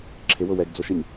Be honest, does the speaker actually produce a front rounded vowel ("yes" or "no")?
no